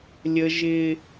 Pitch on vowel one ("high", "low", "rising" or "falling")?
high